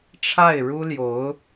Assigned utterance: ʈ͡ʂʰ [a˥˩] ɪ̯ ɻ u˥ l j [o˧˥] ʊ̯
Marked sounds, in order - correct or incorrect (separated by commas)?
correct, correct